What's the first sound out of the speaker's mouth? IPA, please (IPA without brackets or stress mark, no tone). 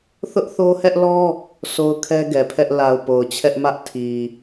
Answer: θ